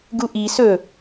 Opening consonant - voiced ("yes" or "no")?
yes